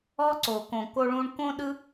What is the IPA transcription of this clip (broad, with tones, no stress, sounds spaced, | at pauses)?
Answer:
ɔ˦ ǀ o˨ k õ˨ k o˦ ɭ ũ˦ ɳ k õ˥ ɗ ɯ˥